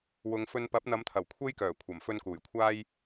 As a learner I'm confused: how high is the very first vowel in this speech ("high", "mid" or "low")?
high